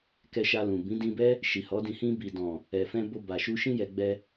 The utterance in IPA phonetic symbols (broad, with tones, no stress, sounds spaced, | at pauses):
k ɛ˧ ʃ a˧ l ũ˨ b ĩ˨˦ d ĩ˧ b ɛ˦ | ʃ i˨ h ɔ˨˦ d ĩ˧ h ĩ˧ b i˨ d ɔ̃˨ | ɛ˨ f ɛ̃˧ b o˧ b a˨ ʃ u˧ ʃ ĩ˧ j ɛ˨ ɡ͡b ɛ˧